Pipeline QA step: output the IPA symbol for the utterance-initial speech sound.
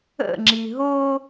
ə̰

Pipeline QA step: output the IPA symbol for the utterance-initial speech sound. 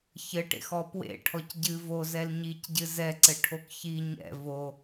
ç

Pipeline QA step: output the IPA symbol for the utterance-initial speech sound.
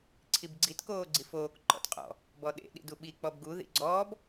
ǀʰ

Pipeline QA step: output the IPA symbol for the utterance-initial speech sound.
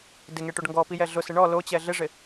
d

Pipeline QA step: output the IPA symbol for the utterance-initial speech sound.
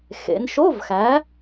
x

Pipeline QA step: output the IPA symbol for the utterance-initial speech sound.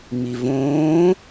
ŋ͡m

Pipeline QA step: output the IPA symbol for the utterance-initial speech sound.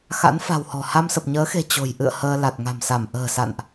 x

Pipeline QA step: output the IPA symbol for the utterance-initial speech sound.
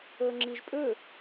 ɤ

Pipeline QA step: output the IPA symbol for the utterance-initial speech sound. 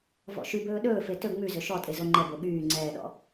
v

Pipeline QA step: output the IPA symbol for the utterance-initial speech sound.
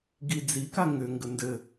ɡ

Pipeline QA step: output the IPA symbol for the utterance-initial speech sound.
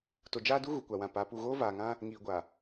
t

